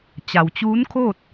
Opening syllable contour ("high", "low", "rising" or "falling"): low